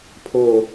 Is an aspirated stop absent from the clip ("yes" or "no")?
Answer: no